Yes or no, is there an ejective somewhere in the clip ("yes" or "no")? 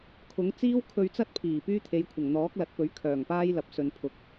no